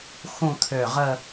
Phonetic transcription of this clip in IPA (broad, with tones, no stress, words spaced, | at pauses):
xũ˥˧t̪ʰø˧˩ ʁə˥˧